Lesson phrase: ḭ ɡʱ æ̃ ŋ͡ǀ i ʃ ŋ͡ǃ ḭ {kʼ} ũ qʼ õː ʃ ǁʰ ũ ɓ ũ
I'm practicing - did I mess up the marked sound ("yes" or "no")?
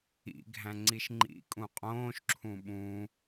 no